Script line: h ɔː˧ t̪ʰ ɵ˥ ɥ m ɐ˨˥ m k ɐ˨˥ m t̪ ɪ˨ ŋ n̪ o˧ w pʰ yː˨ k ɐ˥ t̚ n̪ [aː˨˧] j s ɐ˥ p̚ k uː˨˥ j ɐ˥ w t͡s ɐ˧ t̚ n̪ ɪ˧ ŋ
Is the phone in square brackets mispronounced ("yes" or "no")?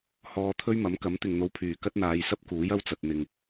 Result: no